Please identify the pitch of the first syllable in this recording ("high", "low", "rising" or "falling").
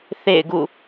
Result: falling